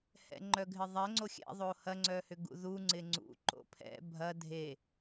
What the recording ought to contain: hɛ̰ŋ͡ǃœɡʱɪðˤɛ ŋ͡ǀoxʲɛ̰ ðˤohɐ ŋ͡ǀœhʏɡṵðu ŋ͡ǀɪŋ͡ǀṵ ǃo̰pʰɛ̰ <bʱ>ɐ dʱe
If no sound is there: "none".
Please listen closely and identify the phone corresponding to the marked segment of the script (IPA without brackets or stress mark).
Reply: bʱ